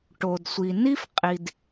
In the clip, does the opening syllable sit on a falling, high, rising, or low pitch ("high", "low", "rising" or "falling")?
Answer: low